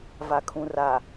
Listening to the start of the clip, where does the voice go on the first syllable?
low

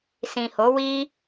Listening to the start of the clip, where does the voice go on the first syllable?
low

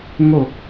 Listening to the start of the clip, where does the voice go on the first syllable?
low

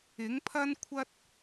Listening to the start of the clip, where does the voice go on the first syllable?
rising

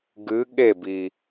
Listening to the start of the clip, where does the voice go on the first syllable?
rising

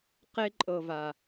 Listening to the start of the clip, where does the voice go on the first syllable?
high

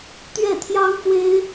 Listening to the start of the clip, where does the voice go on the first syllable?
falling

